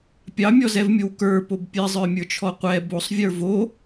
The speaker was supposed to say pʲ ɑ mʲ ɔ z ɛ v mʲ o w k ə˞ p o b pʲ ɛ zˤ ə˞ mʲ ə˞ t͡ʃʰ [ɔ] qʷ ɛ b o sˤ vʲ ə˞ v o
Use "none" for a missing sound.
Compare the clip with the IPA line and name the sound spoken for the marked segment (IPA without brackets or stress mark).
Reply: ɔ